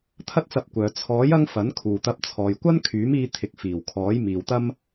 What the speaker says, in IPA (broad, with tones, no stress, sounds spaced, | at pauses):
t̪ʰ ɐ˥ t̚ t͡s ɐ˧ p̚ kʷ œː˨ t͡sʰ ɔː˨˥ j ɐ˥ ŋ f ɐ˨˥ n kʰ uː˨ t̪ ɐ˧ p̚ t͡sʰ ɔː˨ j kʷ ɐ˥ n kʰ yː˨˥ m iː˧ t̪ʰ ɪ˨˥ k̚ f iː˨˩ w kʰ ɔː˨˥ j m iː˨ w t̪ ɐ˥ m